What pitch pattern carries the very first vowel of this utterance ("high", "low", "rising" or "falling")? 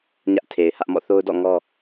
high